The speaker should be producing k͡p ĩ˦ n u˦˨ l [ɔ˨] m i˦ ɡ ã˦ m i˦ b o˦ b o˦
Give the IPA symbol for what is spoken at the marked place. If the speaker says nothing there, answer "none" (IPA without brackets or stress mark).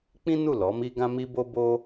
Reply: ɔ˨˦